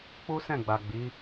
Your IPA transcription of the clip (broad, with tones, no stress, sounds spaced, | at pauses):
k͡p u˦ s ɛ̃˦˨ ɡ͡b a˨ ɡ͡b i˨˦